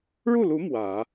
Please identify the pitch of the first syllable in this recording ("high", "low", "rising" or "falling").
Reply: falling